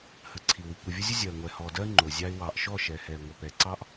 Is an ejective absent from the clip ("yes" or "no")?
yes